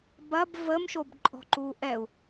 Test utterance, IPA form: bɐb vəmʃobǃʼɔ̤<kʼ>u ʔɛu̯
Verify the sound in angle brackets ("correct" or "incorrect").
incorrect